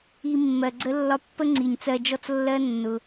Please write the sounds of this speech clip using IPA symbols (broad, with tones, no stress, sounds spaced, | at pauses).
i˧ mː ɜ˨ ɡ͡ǀ ə˦ lː ɒ˦ pː ə˦ ŋ͡ǀ i˨ ɲ t͡s ɜ˧ d͡ʒ ɔ˦ t͡s lː ɜ˦ nː ʊ˧